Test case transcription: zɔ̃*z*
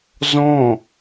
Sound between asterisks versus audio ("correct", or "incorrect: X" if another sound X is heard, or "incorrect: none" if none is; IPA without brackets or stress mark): incorrect: none